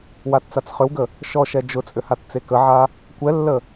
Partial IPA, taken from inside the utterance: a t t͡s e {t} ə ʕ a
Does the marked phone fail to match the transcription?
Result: yes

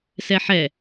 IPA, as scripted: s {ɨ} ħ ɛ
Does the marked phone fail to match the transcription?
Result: yes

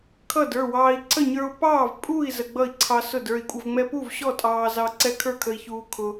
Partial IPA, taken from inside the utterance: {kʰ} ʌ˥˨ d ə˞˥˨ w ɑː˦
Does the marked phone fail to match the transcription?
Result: no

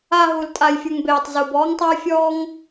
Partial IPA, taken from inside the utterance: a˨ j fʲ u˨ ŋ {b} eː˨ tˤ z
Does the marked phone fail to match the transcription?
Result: no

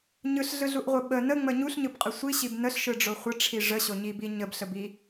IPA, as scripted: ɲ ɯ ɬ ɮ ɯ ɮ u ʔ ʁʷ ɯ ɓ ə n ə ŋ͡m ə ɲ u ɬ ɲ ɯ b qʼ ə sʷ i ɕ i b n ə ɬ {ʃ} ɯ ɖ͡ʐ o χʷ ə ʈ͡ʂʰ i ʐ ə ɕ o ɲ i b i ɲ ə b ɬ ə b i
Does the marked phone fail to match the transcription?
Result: no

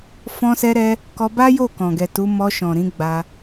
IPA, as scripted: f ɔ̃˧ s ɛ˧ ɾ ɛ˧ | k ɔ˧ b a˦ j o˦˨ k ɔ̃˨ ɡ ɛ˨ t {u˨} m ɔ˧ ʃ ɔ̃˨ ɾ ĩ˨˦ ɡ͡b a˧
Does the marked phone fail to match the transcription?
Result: yes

